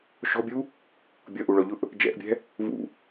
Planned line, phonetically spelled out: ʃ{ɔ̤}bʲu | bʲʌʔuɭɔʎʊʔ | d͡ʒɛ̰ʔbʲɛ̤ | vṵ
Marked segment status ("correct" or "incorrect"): correct